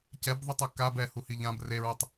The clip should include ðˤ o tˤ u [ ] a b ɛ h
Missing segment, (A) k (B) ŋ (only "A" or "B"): A